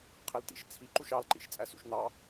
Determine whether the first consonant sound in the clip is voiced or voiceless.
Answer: voiceless